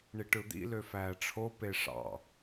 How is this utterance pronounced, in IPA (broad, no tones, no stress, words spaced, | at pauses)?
ɳiʈɯd̪ḭ løfæːʈ͡ʂʰo peʂɑ̰